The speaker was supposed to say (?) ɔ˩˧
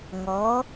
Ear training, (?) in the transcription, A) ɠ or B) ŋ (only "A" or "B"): B